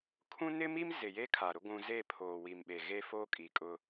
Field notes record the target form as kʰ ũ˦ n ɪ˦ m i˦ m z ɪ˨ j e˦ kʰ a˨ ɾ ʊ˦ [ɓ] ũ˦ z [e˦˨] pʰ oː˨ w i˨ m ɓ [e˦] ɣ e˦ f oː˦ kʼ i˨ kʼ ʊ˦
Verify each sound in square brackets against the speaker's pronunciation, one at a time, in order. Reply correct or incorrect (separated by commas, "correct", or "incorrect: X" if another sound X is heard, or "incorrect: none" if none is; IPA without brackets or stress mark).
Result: incorrect: ɡʷ, correct, incorrect: e˨